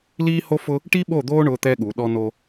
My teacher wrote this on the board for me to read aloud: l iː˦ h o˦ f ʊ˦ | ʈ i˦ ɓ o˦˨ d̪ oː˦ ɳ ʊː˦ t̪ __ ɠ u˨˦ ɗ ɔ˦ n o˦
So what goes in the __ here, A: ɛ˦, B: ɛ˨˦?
A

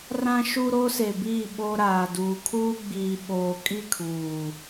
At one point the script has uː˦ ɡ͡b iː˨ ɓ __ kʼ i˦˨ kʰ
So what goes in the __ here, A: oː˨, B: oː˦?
A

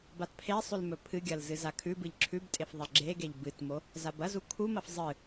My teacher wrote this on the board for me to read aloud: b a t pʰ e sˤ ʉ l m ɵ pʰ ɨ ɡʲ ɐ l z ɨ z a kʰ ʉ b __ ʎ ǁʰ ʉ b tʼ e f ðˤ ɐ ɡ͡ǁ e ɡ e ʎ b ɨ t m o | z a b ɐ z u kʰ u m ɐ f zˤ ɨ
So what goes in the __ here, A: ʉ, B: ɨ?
B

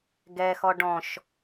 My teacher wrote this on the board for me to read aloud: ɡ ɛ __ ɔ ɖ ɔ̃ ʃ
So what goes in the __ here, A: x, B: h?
A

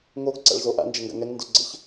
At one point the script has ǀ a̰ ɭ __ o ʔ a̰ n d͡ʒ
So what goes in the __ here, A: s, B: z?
B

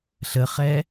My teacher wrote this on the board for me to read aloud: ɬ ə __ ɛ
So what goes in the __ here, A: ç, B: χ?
B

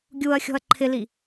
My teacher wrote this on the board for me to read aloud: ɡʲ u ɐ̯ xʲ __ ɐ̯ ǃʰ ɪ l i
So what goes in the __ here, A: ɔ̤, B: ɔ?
A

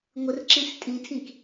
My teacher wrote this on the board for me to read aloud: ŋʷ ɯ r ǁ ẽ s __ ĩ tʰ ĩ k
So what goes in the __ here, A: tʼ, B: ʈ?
A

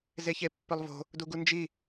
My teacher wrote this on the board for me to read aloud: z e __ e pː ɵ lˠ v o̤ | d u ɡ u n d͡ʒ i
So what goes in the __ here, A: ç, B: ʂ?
A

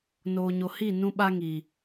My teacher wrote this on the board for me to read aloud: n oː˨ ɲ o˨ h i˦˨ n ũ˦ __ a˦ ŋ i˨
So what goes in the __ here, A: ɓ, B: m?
A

